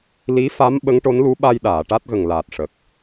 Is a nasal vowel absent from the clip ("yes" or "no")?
yes